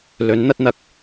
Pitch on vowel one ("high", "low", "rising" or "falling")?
rising